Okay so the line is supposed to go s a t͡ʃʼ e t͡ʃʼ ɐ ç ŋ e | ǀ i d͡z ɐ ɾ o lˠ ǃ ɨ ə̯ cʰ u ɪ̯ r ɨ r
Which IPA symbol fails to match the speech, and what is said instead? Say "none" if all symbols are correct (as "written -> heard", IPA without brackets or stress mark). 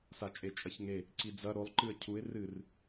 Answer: none